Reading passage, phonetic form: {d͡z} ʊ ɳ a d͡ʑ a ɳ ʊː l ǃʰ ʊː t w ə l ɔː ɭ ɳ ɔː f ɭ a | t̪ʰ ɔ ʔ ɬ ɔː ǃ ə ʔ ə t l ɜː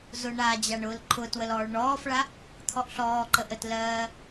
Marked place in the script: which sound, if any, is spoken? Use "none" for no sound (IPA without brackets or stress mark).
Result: z